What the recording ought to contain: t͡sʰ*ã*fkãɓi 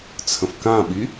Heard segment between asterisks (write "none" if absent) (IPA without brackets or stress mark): ə̃